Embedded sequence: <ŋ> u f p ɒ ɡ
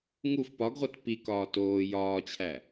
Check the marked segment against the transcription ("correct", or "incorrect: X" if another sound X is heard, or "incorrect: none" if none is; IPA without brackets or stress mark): correct